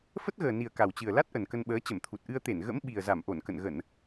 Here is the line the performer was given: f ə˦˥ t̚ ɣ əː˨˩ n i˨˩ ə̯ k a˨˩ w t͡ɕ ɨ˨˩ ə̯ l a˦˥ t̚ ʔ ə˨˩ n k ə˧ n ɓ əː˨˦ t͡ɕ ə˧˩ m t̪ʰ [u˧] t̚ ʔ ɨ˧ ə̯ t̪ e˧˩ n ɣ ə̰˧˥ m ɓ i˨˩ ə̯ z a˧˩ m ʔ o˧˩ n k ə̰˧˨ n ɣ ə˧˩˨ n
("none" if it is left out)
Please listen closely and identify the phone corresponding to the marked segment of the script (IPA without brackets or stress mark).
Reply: u˨˩